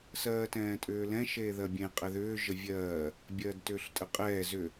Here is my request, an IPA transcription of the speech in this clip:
s ɜː t ɛ̃ː tʼ ʏː l ɛ̃ ʃ eː ð ɜ bʲ ẽ qʼ ɛ ð ʏː ʒ ə vʲ ɜː | bʲ ɜː d t ʏː ɬ tʼ ə qʼ ɛː z ʏ

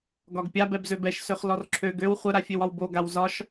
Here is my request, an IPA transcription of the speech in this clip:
ɡ ɒ ɡ pʲ a b ɛ b z ø b ɛ ʃ s ø χ l ɔ r ǁʰ ø ɡ ø w χʷ ə ɾ a fʲ ø w ɒ w b o ɡ a w z ɒ ʃ

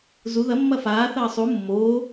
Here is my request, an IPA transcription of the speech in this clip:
z u ð ɐ mː ɐ f aː θ ɐː sˤ u mː oː

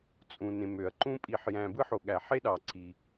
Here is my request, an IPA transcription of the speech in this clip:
t͡sʼ ũ˩ n ẽ˩ m ø˩ ɐ̯ ǃ ũ˧ pʼ i˩ ħ j æ̃˩ b ɯ˧ ħ o˩ ɠ æ˩ ħ e˧ ɗ ɑ˩ ǀʰ i˩

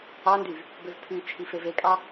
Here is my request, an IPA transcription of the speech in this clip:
ɑ n d y v | b ø v pʰ y t͡ʃʰ i f e v e kʼ ɑ

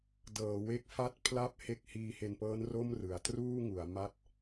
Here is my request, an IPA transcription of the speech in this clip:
d ɤː˩˦ w e˦˥ k̚ f a˥˩ t̚ pʰ l a˥˩ p̚ h e˦˥ k̚ h iː˧ h e˧ n p ɤː˦˥ n r o˥˩ m r ɯ˨˩ a̯ t r uː˥˩ ŋ u˩˦ a̯ m a˥˩ t̚

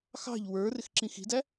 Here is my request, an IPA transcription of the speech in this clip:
x ɑ̤ ʎ w ə˞ r ɪ x ǁ ĩ x i̤ d æ

